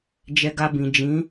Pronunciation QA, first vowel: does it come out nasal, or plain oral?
oral